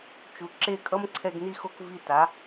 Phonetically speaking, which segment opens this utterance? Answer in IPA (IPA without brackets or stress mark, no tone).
t͡ʃ